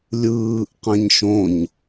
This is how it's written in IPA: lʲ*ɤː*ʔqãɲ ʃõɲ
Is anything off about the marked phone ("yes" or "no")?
yes